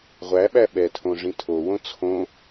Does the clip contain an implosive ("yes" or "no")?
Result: yes